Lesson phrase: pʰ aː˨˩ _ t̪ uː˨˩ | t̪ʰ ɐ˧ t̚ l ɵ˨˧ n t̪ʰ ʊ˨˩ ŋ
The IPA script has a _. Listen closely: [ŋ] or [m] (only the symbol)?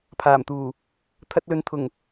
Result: m